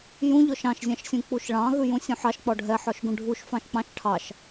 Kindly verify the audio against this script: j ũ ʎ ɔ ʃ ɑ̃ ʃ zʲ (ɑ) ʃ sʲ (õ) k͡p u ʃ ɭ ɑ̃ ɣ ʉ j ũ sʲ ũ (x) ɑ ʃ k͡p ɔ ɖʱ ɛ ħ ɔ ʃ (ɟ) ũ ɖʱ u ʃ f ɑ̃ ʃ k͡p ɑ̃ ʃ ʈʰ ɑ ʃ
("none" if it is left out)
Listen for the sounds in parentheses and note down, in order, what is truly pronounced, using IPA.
ɑ̃, ũ, ħ, ɡ

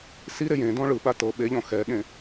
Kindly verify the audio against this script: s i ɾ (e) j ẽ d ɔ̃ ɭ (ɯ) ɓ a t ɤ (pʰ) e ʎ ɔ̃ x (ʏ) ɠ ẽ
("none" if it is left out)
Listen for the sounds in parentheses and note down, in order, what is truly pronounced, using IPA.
e, ɯ, ɓ, ɛ

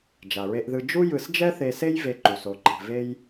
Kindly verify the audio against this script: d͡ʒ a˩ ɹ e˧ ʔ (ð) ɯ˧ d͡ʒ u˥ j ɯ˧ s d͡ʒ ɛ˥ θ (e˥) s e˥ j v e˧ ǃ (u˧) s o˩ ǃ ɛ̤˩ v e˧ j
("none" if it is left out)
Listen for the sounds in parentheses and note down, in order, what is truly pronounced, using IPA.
ð, e˧, u˩

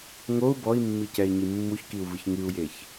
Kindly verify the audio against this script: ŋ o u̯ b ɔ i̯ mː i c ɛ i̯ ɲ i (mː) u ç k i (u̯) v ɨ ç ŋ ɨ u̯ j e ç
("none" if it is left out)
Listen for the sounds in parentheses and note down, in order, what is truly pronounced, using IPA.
mː, u̯

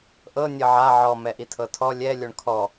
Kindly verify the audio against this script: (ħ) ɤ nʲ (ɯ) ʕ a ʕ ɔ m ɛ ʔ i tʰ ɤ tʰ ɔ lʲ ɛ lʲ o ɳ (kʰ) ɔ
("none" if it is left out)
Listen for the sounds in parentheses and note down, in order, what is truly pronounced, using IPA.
ʔ, ɤ, kʰ

